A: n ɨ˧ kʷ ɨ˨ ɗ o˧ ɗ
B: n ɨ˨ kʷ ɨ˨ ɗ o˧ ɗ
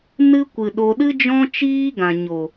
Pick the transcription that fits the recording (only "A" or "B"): A